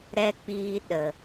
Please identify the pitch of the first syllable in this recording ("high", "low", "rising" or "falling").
low